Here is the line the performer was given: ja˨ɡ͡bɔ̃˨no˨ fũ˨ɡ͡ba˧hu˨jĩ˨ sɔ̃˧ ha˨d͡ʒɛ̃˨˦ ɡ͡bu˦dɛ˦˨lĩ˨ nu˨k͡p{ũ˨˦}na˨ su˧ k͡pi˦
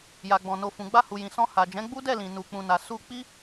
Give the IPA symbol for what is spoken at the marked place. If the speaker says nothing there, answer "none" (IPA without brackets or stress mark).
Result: ũ˨